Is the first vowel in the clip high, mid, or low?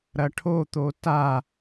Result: low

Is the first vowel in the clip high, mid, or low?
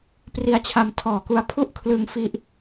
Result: high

